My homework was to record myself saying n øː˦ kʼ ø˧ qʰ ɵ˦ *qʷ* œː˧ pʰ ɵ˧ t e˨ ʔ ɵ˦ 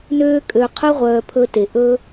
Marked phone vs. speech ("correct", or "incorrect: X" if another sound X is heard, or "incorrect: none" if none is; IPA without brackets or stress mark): incorrect: ʁʷ